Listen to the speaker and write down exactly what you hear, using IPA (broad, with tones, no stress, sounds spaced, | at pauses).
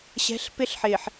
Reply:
ɕ ɛ̤˨˦ ɬ p ɪ˦ ɬ ħ ɪː˨ ħ